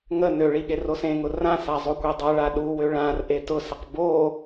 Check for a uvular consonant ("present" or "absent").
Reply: present